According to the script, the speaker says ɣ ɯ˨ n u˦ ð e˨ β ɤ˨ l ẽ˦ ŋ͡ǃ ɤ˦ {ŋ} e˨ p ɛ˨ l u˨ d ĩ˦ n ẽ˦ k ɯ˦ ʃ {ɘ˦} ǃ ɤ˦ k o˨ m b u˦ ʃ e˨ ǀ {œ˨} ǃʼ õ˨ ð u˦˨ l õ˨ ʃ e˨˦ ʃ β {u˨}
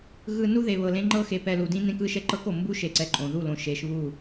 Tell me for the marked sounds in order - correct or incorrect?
incorrect: x, incorrect: ɛ˦, incorrect: ɛ˨, incorrect: u˦˨

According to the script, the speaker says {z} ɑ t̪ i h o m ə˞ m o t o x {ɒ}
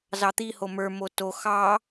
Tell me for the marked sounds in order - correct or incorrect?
correct, incorrect: ɑ

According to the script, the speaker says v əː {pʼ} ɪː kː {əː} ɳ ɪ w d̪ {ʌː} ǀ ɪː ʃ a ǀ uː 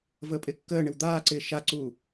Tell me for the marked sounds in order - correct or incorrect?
correct, correct, incorrect: aː

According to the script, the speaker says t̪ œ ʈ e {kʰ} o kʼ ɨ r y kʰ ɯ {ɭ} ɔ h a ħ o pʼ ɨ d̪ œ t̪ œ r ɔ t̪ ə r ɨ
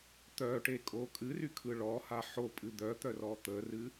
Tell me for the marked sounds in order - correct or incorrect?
incorrect: kʼ, correct

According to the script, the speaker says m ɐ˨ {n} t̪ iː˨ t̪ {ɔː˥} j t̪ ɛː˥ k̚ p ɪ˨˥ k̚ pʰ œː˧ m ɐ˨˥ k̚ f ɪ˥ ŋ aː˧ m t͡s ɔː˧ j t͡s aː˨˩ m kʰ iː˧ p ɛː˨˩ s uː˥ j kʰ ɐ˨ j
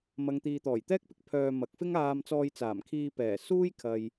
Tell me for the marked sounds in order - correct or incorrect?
incorrect: ŋ, incorrect: ɔː˨˩

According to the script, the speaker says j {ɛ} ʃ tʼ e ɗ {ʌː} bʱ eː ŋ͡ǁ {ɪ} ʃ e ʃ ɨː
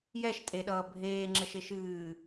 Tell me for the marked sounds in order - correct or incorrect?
correct, correct, incorrect: ə

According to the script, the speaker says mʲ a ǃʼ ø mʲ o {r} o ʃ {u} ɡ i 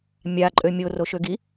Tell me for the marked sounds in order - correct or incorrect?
correct, incorrect: ø

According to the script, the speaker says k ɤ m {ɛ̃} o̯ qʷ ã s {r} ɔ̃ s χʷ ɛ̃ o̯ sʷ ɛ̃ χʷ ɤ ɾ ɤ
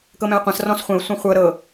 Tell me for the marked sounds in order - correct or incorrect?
correct, correct

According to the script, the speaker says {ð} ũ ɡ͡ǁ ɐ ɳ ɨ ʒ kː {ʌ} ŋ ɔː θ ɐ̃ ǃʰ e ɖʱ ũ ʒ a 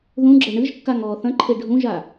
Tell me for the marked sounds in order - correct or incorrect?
correct, incorrect: a

